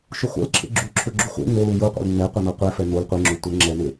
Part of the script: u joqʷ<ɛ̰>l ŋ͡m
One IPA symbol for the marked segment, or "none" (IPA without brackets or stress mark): ɛ̰